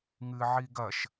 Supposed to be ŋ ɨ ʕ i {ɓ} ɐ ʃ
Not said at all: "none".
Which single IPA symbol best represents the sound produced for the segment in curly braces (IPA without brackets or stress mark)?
ɡ